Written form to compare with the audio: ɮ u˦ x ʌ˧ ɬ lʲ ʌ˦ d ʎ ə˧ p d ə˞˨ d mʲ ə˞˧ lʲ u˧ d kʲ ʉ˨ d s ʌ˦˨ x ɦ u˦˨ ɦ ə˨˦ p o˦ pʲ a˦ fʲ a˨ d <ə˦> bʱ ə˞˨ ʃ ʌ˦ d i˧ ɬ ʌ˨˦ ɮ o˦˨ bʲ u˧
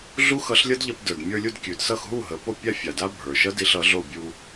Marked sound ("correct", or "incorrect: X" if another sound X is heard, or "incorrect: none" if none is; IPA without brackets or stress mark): incorrect: a˦